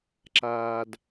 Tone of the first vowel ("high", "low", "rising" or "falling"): low